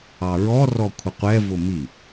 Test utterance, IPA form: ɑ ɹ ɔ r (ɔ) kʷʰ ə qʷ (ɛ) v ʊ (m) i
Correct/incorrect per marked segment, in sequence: correct, correct, correct

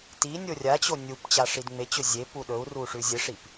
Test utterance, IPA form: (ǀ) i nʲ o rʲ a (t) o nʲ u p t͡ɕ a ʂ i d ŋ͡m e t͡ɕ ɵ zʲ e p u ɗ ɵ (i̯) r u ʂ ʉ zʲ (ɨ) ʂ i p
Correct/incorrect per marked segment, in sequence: incorrect, incorrect, incorrect, correct

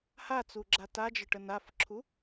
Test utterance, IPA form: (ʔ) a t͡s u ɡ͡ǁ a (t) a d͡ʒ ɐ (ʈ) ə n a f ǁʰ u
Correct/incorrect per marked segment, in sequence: incorrect, correct, correct

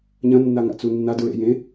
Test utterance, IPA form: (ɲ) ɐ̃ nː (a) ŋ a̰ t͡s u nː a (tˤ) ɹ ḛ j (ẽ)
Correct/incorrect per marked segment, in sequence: correct, correct, incorrect, correct

